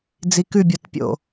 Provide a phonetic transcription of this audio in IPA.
d͡z i k ʉ bʲ ɔ t pʲ o̰

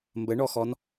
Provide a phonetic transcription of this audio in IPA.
m b ə ɳ ɔ x ɔ n

